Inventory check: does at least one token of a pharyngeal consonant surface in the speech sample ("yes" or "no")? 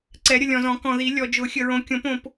no